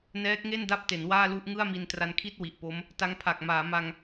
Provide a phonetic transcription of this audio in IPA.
n ɛː˦˥ k̚ ŋ e˥˩ n d a˥˩ p̚ t e˩˦ n w aː˥˩ l u˥˩ ʔ ŋ ɯ˥˩ a̯ m i˧ n t r a˧ n kʰ i˥˩ t̚ w i˨˩ ʔ p o˦˥ m | t a˦˥ ŋ pʰ a˨˩ k̚ m aː˩˦ m a˧ ŋ

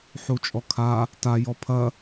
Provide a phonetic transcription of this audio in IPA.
ħ u t͡ʃʼ ɔ kʰ a | t a j ɔ pʰ ɐ

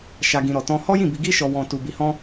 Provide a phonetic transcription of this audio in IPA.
ʃ a˧ ɡ ĩ˧ ɾ ɔ˧ t ɔ̃˦ h ɔ˦ j ĩ˦˨ b i˧ ɡ i˦ ʃ ɔ˧ w ɔ̃˧ t u˧ b i˧ h ɔ̃˦

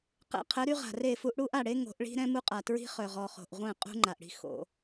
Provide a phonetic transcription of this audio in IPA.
q ɛ̰˨ qʰ ə˨˦ ɾ y˦ ʁ a̤˨ r e˦˨ f u˦ ʔ ɽ u˦ ʔ a˦˨ ɽ e˦ ŋ o̤˨˦ ʔ ɭ i̤˦ ɾ ɛ̃˦ m u˦ qʼ a˨ t ɹ i̤˦ χ œ˨ ʁ ɔ˨ χ o̤˨ ʔ ʁʷ ɛ̃˦˨ qʼ ṳ˦ ŋ͡ǃ a˨ ʔ ɽ i̤˦ x o̰˦

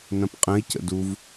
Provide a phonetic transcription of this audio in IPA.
n ɐ̃ p qʼ ə̃ i̯ c ə̰ d u v

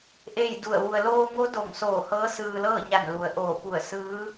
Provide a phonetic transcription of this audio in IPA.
ʔ e˥˨ j d u˧˩ ə̯ ʋ u˩ ə̯ l oː˧ ŋ o˧˥ d o˧˩ ŋ s oː˧˩ h ɤː˧˥ s ɯː˧ l ɤː˥˨ ɲ a˧˩ n l u˩˧ ə̯ ʔ oː˧˩ p u˧˩ ə̯ s ɯː˧˥

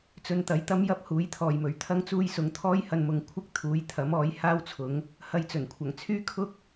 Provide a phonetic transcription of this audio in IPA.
t͡s ɵ˧ n t̪ ɐ˨˥ j t̪ ɐ˥ m j ɐ˥ p̚ h uː˨˥ j t̪ʰ ɔː˨ j m ɵ˨˥ ɥ t̪ʰ ɐ˧ ŋ t͡s uː˧ j s ʊ˨˧ ŋ t̪ʰ ɔː˥ j h ɐ˧ n m ʊ˨ ŋ kʷʰ ɪ˥ k̚ t̪ʰ uː˨˥ j t̪ʰ ɐ˨˥ m ɔː˨˥ j h aː˥ w t͡sʰ ʊ˨˥ ŋ | h ɐ˧ j t͡s ɵ˨˩ n kʷʰ ɐ˨˩ ŋ t͡sʰ yː˥ kʰ ʊ˥ k̚

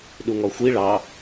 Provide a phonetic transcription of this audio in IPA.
ɗ u ŋ ɔ xʷ i ɭ ɑ

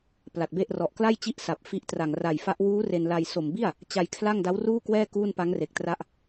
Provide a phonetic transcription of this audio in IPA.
p l a˨˩ t̚ b e˥˩ ʔ r ɔ˨˩ ʔ k l a˥˩ j t͡ɕ i˥˩ ʔ s a˨˩ p̚ f i˦˥ ʔ t r a˨˩ ŋ r a˨˩ j f a˦˥ ʔ w uː˦˥ r e˧ n l a˧ j s o˨˩ m b i˥˩ a̯ | t͡ɕ a˧ j kʰ l a˥˩ ŋ d a˦˥ w r uː˥˩ k w ɛː˥˩ k uː˥˩ n p a˦˥ ŋ r e˨˩ k̚ t r a˦˥ ʔ

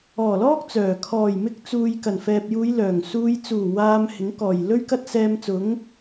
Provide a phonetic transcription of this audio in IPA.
ɔː˨˩ l ɔː˥ k̚ t͡s œː˨˩ kʰ ɔː˨˩ j m ɪ˧ k̚ t͡s uː˨ j k ɐ˨˩ n f ɛː˨ p̚ j uː˨˧ j l œː˨˩ ŋ s uː˧ j t͡s uː˨˩ w aː˧ m h ɪ˨˥ ŋ k ɔː˨˩ j l ɵ˥ ɥ k ɐ˥ t̚ s ɛː˧ m t͡s ʊ˨˥ ŋ

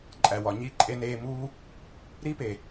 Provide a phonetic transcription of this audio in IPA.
ǃʼ æ˨ w ɒ˨ ɲ i˦˨ ǃʼ e˧ n eː˧ m uː˦ | ɾ i˦ p e˨

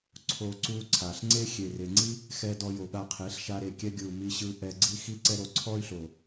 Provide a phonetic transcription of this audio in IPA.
ǀʰ o˦ ǀ u˦ ǀʰ a˨ ɬ ŋ͡ǀ e˦ xʲ e˨ r e˨ ŋ͡ǀ i˦ | x ɛ˧ d ɔ˧ j o˨ ɠ a˧ qʰ e˨˦ ɬ ʃ a˧ ɾ e˨ kʲ ɛ˧ ɡʲ ɯ˨ u̯ m i˧ ɕ ɯ˧ ʔ ɛ˧ ɡ͡ǀ i˧ x i˦ ǀ ɛ˦ ɾ o˧ ǀʰ ɔ˦ y̯ ɬ o˨

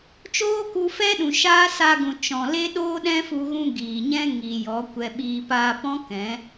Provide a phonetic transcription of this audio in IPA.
t͡ʃ oː˦ k u˧ f ɛ˦ ɗ ũ˨ ʃ aː˦ s a˧ ɡ ũ˨ t͡ʃ ɔ̃˨ l e˦ ɗ oː˦ ɗ ɛ̃˦ f u˧ ɣ ũ˧ ɡ iː˨ ɲ ɛ̃˦ ŋ i˨ j ɔ˨˦ kʷ ɛ˧ ɓ iː˧ p aː˧ p ɔ̃˦ k ɛ̃˨˦

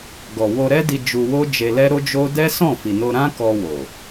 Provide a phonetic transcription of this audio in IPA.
ɡ ɔ˨ w o˧ ɾ ɛ˦ d i˧ d͡ʒ u˧ w o˦ d͡ʒ e˧ l ɛ˦ ɾ o˦ d͡ʒ o˦ d ɛ˦ s ɔ̃˦˨ f i˨ n o˧ ɾ ã˦ k ɔ˧ w o˨

